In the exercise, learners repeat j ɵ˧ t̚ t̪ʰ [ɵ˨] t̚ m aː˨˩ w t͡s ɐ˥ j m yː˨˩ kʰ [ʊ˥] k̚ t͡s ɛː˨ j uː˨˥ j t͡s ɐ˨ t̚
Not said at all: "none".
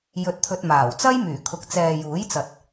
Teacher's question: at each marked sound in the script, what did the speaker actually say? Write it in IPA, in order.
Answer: ɵ˧, ʊ˨

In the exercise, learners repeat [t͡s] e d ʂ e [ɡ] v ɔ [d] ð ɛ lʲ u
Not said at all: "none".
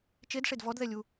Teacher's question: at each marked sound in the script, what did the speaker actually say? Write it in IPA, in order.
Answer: t͡ʃ, d, d

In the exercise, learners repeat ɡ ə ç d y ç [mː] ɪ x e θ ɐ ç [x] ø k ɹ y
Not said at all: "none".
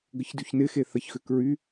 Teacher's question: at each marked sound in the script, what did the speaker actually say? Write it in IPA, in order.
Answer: n, x

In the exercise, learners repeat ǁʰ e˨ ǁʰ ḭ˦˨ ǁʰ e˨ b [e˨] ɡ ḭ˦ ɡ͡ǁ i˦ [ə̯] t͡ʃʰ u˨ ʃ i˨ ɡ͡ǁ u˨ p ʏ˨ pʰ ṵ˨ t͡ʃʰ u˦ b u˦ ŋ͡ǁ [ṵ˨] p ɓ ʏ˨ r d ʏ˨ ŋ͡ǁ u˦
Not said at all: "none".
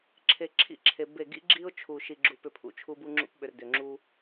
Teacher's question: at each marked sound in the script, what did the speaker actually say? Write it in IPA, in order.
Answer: e˦˨, ʊ̯, ṵ˦

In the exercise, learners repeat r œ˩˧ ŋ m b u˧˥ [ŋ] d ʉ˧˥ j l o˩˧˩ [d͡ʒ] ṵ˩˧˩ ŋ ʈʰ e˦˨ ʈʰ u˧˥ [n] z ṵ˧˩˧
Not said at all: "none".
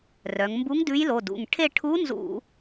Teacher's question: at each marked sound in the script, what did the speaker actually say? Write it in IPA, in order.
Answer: ŋ, d, n

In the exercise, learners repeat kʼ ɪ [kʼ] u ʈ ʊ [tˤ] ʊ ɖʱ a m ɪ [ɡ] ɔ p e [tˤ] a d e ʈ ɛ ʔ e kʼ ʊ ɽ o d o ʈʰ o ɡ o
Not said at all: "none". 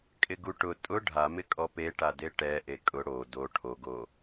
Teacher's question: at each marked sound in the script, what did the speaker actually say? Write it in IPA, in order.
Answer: ɡ, tʼ, kʼ, ʈ

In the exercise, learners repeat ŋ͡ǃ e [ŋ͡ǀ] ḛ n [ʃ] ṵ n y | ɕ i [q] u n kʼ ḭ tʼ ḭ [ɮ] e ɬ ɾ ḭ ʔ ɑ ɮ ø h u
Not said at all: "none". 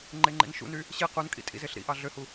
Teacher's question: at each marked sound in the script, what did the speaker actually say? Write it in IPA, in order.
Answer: ŋ͡ǃ, ʃ, q, z

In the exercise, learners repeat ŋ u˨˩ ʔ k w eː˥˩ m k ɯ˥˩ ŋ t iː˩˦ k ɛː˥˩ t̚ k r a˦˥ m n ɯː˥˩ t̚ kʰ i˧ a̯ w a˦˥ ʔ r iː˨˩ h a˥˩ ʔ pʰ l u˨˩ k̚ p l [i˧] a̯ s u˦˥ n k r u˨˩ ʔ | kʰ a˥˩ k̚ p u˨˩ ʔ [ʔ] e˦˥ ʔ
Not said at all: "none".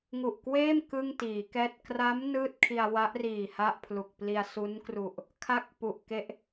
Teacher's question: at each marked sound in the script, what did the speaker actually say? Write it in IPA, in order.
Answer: i˧, k

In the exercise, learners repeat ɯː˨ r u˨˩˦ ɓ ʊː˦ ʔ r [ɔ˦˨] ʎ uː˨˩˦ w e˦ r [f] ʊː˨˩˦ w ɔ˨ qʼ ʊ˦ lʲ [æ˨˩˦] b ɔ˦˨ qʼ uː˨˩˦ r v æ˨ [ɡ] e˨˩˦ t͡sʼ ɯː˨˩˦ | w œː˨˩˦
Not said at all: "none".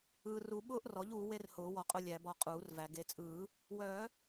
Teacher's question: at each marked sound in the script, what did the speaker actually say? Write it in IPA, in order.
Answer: ɔ˩˥, h, æ˨˩˦, ɡ

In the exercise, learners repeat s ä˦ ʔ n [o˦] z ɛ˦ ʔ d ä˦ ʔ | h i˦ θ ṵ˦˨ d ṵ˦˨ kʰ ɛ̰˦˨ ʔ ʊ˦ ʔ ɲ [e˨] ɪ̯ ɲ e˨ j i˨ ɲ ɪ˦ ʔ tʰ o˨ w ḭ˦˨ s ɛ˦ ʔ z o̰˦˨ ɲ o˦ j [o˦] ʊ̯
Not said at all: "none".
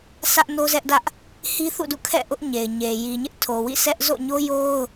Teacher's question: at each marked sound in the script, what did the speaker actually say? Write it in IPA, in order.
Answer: o˦, e˨, o˦

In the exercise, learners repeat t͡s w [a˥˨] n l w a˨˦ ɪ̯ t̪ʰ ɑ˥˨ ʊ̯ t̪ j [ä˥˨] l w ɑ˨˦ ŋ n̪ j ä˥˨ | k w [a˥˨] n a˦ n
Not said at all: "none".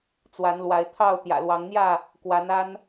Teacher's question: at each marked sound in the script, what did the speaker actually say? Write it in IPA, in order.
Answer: a˨˦, ä̰˨˩, a˨˦

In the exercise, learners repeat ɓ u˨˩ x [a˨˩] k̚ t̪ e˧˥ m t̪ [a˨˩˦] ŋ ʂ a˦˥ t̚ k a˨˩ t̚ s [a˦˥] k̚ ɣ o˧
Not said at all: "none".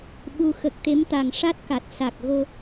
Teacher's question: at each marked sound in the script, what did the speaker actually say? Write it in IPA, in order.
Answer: ə˨˩, a˨˩, a˨˩

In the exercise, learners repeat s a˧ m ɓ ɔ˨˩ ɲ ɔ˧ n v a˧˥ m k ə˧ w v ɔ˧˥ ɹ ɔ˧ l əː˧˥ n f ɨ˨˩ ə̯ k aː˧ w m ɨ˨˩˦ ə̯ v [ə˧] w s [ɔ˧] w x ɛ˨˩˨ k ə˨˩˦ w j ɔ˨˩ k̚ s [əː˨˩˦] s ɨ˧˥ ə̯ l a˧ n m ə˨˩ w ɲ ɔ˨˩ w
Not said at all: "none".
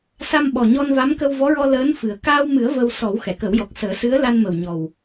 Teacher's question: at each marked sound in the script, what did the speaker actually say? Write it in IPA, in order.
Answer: ə˧, ɔ˨˩˦, əː˨˩˦

